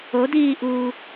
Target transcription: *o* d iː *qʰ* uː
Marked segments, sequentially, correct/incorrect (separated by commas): correct, incorrect